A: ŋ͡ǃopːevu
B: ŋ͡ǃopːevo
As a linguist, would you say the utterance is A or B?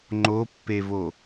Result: B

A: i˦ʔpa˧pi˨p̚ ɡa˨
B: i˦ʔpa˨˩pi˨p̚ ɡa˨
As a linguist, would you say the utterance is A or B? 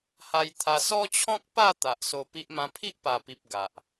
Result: B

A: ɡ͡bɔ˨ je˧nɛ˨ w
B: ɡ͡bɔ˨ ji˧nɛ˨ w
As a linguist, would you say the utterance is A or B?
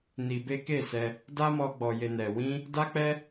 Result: A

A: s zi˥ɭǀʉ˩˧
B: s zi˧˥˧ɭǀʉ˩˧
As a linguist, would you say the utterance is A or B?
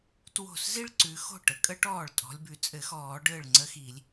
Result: A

